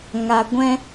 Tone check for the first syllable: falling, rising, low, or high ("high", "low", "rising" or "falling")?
high